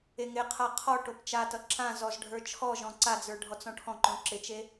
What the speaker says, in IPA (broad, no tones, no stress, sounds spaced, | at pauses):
e ŋ ɪ qʰ a qʰ ɔ ʈ o p t͡ʃ a t ʌ ǁ ã z ɔ z ɖʱ ə˞ t͡ʃʰ ɔ ʒ ɔ̃ ǀ a d͡z ə˞ ɖʱ ɔ t͡s ɔ̃ ʈʰ ɔ̃ ǃ õ ǁ ɪ t͡ʃ e